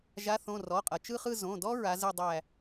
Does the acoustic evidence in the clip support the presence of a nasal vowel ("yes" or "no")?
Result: yes